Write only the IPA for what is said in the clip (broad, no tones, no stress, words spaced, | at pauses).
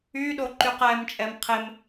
yɗoǃyq ɛmt͡ʃʼɛm qʰem